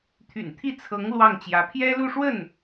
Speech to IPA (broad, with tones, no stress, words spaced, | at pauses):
t̪ʰy̰˨˩nt̪ʰi˥˩t͡sʰɤ˧˥ŋ lwɑ˥˩ŋt͡ɕjä˧˥ pʰjɛ˥lu˥˧ʂwə˥˩n